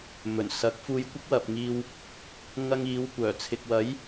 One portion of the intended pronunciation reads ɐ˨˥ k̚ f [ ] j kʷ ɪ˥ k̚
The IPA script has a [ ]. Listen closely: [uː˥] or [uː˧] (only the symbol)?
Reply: uː˧